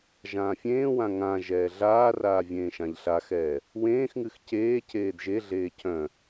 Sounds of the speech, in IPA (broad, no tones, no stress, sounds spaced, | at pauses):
ʒ ãː fʲ ẽː w ã ŋ ã ʒ ɛː ɮ aː r aː vʲ ẽː ʃ ã ʎ ɬ a x ɛː | w ẽː x ŋ ɨ x c eː cʰ eː d ʒ e ɮ eː cʰ œ̃